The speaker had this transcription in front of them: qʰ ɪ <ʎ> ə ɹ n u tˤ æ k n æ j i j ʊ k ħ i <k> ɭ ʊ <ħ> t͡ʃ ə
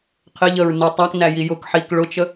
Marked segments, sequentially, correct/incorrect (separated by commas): correct, correct, incorrect